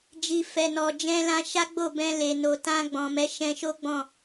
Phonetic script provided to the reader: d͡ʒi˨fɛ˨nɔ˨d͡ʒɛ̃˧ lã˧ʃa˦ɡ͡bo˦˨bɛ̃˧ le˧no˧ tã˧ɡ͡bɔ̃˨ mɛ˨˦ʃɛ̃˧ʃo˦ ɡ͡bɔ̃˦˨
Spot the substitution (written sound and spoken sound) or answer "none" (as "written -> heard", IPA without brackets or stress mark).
none